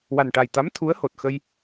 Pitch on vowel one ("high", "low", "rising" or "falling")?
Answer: low